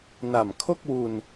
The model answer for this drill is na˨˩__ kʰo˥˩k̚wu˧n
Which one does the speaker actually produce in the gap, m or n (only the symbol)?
m